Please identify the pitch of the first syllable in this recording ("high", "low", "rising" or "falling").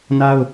high